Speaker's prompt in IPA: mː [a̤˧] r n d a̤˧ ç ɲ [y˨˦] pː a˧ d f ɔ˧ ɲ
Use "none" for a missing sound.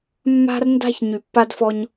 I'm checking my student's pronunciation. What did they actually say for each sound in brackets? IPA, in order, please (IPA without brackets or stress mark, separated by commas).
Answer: a̤˧, y˨